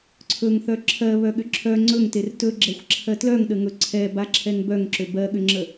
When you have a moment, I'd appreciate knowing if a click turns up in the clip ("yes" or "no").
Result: yes